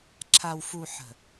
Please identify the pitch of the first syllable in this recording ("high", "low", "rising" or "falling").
low